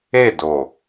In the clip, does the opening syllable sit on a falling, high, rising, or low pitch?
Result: falling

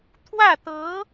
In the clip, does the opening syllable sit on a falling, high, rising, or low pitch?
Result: falling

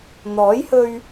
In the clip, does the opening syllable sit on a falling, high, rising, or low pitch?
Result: rising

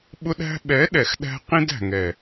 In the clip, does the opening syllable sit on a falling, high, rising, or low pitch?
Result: high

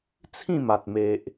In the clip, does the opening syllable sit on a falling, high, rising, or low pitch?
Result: falling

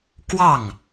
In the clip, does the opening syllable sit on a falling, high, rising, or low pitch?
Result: falling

